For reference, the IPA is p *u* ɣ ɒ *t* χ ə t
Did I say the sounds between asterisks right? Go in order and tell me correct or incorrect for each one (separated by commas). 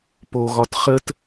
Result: incorrect, correct